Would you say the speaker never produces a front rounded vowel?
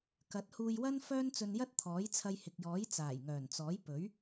no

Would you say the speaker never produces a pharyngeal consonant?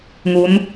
yes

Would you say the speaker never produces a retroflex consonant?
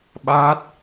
yes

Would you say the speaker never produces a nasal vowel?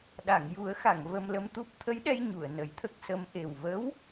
yes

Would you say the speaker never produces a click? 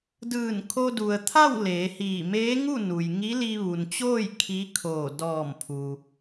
yes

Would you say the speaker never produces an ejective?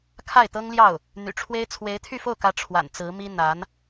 yes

